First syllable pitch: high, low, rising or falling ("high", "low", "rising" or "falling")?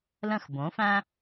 falling